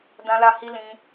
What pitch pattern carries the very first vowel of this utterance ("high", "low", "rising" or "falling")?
high